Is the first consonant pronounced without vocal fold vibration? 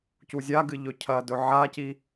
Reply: yes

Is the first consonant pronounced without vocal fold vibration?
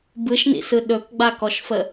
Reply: no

